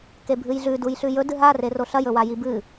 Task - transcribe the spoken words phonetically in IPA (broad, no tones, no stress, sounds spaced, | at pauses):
k e bʱ ɨ j ɮ ʉ d u j ɬ ʉ j ɵ d ɨ ɦ a r e r o ɬ ɐ j ɵ w a j i b ɨ